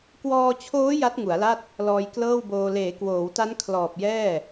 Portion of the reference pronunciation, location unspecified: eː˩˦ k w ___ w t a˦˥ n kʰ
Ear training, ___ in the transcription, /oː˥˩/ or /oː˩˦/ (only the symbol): oː˩˦